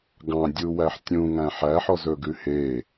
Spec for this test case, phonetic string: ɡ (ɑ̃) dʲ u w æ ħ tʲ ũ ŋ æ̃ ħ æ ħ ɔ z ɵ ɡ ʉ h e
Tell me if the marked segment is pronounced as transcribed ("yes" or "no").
yes